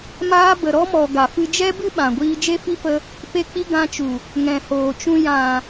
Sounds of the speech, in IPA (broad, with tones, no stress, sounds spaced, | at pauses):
m aː˦ b ə˨ ɾ ɔ˧ m ɔ˨ ɡ a˨ f ɨ˧ d͡ʒ ɛ˦ b ɨ˦ ɓ ã˨ ɡʷ iː˧ d͡ʒ e˦ f i˦ f ə˧ | p e˦ k͡p i˦ ɡ ã˧ t͡ʃ u˨ | ŋ ɛ̃˨ h oː˨ t͡ʃ ũ˧ j ã˨